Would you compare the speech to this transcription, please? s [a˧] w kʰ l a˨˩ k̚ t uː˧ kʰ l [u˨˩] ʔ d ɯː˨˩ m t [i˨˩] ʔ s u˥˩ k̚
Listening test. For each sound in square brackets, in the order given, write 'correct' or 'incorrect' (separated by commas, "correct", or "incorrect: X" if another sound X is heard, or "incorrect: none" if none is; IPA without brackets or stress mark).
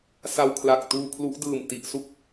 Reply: correct, incorrect: u˦˥, correct